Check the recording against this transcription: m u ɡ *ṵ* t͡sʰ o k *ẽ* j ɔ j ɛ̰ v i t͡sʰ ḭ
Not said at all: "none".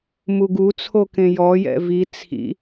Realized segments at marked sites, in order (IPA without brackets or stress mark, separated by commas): u, ẽ